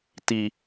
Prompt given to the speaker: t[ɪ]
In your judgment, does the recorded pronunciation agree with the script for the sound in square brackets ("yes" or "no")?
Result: no